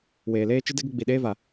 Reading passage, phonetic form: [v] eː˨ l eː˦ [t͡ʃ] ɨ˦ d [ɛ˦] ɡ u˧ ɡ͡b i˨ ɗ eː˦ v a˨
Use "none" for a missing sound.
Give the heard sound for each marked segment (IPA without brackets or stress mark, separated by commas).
w, t͡ʃ, ɛ˦